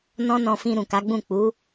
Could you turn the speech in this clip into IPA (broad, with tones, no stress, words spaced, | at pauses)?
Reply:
nɔ̃˦nɔ̃˧fĩ˧ ɾũ˨ka˨˦ɡ͡bũ˦˨ k͡pu˨˦